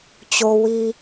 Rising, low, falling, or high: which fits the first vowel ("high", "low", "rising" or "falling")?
high